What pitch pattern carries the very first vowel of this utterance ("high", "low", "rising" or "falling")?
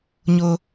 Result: high